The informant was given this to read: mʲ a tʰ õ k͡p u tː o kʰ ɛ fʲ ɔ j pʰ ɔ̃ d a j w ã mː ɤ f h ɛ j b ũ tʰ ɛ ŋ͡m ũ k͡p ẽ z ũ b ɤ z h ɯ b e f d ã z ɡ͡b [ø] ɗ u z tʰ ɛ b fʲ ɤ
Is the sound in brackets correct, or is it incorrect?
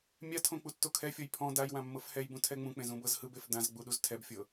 incorrect